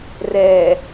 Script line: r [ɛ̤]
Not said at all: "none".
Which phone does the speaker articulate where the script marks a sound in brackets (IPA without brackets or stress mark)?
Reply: ɛ